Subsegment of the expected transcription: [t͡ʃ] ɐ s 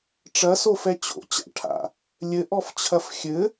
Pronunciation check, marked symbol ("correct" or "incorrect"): incorrect